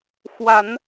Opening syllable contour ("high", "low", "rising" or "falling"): rising